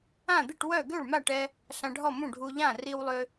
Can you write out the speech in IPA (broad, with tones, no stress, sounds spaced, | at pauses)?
ã˥˩ d̪ i˥˩ ʈ w œ˥˩ ɡ ø˥˩ ɭ m a˥˩ ʈ ɛ˧ | ɬ ã˧ ɖʱ ɔ˥˩ m ũ˥˩ ɖʱ u˧ ʎ ã˥˩ r i˧ w lˠ ø˧